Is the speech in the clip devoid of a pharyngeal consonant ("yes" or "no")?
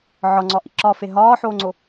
no